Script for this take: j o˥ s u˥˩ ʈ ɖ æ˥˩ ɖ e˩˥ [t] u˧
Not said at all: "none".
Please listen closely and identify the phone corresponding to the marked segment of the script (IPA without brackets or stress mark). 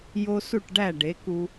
k